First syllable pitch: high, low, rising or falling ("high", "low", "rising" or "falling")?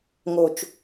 low